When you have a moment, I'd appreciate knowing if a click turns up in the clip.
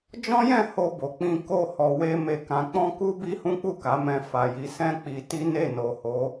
no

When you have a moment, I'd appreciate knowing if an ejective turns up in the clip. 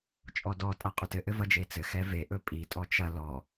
yes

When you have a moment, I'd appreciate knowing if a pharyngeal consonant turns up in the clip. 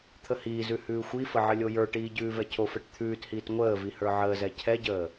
yes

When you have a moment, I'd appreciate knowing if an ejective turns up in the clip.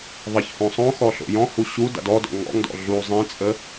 yes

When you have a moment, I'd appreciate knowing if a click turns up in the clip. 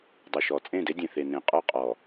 no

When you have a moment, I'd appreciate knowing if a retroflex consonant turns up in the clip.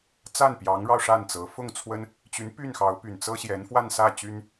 yes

